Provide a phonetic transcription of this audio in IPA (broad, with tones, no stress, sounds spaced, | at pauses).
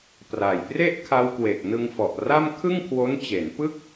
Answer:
p r a˨˩ j p r e˥˩ ʔ kʰ a˧ w k w e˨˩ k̚ n ɯ˧ ŋ f ɔ˨˩ ʔ r a˥˩ m kʰ ɯ˥˩ ŋ kʰ w o˦˥ n t͡ɕ e˩˦ n p ɯ˥˩ k̚